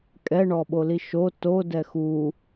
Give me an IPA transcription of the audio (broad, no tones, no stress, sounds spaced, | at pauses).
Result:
kʼ ɛ ɳ ɔ ɓ o l i ʃ o t o d ɛ x u